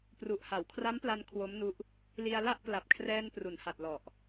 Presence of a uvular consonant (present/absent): absent